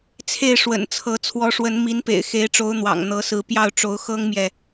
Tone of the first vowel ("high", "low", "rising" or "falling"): falling